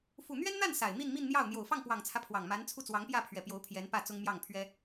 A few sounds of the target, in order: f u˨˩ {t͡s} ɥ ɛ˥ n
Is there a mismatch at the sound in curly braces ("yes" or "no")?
yes